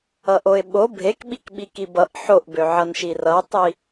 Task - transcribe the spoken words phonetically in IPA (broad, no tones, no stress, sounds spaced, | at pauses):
ʌ ʔ o ɪ̯ ɓ o bʱ e k ɓ i k ɓ i k i b ʌ ʔ ħ o ʔ b ø ʕ ʌ n ʃ i r ʌ tˤ i